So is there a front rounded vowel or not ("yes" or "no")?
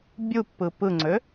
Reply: yes